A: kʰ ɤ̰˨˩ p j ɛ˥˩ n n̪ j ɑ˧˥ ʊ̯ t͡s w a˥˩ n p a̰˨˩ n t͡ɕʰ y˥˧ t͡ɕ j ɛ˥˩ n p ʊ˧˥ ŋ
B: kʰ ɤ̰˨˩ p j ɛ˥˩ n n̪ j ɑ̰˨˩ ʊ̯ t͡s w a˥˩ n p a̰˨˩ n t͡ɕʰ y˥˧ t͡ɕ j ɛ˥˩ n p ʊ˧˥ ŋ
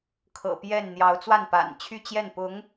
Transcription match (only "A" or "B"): A